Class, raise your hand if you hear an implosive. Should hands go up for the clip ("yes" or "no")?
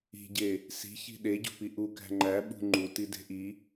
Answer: yes